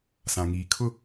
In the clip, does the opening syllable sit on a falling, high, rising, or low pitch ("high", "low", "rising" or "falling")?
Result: low